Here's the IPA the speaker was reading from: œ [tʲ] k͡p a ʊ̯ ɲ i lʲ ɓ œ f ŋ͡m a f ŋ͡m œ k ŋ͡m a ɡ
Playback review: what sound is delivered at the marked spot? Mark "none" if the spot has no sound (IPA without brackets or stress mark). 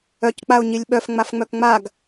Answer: c